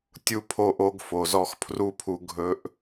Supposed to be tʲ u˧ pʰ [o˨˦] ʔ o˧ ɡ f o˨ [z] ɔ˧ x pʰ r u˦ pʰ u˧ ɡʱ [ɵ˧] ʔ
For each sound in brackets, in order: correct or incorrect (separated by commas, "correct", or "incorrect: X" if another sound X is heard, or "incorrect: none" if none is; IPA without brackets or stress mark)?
incorrect: o˧, correct, correct